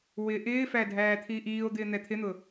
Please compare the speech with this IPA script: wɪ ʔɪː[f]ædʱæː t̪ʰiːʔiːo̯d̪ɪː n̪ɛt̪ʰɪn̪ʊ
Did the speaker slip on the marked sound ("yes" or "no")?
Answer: no